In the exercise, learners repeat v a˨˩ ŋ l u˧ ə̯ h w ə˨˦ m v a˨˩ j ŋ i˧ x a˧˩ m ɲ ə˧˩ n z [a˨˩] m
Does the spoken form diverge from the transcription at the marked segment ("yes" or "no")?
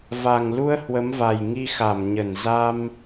yes